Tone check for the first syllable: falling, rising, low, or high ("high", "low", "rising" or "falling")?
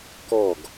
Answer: falling